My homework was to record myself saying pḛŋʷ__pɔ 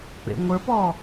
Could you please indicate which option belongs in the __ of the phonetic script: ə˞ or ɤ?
ə˞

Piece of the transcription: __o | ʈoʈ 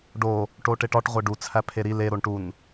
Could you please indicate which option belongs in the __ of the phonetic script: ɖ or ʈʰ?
ɖ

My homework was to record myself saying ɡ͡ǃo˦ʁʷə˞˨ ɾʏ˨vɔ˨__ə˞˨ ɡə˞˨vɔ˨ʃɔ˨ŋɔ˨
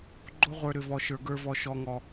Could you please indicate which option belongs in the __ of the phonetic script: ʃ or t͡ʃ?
ʃ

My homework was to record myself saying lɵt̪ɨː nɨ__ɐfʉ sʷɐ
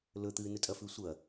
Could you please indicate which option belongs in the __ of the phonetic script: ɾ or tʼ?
tʼ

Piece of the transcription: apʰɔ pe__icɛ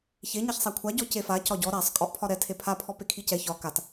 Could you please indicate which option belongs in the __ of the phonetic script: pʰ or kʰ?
kʰ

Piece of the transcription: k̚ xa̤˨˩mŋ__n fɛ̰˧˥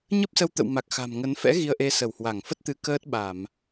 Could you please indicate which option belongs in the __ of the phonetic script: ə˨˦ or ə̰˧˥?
ə˨˦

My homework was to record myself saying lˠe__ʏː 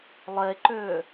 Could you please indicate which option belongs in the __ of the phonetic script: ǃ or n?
ǃ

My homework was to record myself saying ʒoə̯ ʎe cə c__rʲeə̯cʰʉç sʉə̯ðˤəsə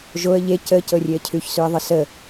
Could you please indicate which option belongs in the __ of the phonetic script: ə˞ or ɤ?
ɤ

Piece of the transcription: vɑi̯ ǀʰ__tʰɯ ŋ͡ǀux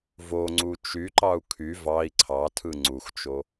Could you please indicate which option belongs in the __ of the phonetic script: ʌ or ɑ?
ɑ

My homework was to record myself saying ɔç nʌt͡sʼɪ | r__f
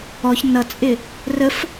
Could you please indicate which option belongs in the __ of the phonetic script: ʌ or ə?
ə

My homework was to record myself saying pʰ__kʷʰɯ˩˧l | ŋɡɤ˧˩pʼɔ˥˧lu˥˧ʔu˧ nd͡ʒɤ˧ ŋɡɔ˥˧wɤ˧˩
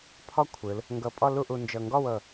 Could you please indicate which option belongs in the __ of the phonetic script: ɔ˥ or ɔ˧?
ɔ˥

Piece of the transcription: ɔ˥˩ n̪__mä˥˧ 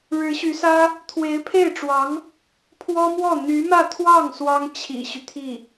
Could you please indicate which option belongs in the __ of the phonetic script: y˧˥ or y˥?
y˧˥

